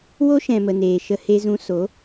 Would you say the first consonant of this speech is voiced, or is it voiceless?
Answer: voiced